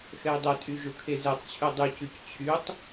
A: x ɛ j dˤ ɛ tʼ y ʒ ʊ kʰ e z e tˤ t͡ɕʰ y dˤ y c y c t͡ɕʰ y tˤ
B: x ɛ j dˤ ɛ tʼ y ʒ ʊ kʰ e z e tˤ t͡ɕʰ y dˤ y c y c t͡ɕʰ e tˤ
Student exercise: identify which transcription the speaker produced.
A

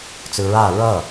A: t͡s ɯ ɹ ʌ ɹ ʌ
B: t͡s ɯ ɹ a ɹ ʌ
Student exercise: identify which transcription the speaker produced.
B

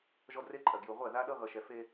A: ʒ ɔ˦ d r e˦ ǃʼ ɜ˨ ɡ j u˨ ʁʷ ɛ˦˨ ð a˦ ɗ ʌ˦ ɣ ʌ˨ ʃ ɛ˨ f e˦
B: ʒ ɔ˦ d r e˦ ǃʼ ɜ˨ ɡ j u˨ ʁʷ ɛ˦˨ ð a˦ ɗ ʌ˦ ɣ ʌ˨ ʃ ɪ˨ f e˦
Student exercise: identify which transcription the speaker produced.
A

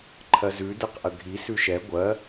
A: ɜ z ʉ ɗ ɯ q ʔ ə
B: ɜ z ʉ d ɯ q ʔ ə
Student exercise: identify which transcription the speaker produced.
B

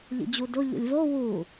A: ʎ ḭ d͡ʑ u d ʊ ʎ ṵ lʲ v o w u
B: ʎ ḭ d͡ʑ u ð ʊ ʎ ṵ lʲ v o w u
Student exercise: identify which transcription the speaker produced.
A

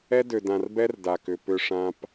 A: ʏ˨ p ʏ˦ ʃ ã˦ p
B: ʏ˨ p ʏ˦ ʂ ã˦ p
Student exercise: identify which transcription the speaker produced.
B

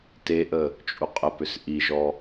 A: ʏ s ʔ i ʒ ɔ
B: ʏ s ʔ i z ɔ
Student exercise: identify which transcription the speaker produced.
A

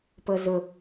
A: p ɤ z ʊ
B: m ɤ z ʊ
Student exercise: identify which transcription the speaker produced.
A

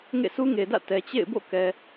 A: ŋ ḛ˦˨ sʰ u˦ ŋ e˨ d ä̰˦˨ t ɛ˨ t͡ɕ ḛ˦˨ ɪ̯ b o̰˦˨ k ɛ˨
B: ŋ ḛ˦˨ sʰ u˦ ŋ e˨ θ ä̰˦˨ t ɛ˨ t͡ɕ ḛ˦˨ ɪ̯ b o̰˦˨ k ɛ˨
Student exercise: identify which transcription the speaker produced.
A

